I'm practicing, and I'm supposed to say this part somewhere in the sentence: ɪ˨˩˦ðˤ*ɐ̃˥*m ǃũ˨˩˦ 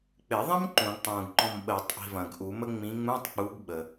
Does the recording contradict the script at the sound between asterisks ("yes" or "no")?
no